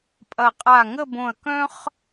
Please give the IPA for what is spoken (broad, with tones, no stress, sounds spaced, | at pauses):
pʼ ɐ˧˩ qʼ a˧˩ ŋ ə˥˧ b õ˧˩ ɐ̯ k œ̃˥ χ